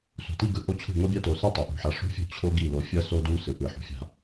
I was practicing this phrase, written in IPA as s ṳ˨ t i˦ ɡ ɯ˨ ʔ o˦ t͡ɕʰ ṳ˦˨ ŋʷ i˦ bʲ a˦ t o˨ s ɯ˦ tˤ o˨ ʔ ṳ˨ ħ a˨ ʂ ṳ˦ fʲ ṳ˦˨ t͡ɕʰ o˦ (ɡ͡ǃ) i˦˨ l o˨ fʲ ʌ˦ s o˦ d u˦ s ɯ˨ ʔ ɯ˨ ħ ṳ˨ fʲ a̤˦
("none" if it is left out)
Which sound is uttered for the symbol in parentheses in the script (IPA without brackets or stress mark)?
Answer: ɡ